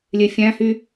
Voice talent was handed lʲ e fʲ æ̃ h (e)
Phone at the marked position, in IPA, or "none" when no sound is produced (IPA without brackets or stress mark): y